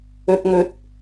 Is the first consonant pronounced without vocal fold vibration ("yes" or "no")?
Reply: yes